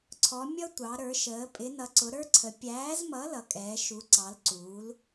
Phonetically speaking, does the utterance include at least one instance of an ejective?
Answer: yes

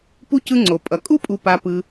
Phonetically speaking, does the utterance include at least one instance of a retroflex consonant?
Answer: no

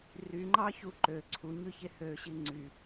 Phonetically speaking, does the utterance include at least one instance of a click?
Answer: yes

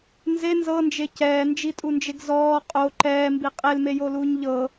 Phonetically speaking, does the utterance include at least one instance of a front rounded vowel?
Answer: no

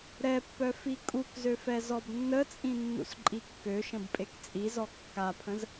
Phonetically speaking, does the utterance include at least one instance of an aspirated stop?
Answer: yes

